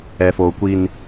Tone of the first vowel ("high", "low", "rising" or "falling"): low